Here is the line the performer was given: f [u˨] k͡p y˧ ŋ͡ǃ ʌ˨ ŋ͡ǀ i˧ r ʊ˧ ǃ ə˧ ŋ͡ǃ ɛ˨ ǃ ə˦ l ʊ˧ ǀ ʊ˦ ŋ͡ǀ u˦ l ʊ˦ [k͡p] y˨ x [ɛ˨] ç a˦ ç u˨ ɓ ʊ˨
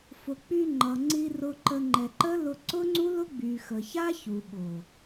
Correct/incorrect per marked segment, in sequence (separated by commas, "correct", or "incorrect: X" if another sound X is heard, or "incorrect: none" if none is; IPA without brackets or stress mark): incorrect: ʊ˨, incorrect: ɡ͡b, incorrect: ə˨